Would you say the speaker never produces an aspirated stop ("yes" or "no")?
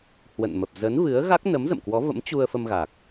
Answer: yes